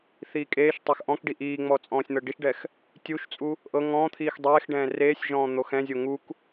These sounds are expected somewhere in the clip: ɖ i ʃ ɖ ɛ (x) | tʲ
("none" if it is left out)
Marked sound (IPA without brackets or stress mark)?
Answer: x